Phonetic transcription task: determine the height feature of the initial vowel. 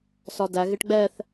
low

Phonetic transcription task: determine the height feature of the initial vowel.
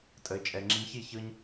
mid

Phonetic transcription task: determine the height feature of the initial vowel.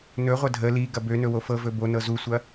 mid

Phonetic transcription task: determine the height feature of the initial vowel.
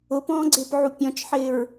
high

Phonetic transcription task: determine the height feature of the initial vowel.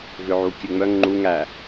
high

